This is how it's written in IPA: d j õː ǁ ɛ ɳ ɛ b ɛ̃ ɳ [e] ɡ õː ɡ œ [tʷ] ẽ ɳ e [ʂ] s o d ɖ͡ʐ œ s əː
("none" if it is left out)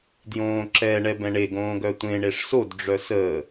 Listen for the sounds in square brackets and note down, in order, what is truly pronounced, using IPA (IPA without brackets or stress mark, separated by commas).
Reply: e, tʷ, ʂ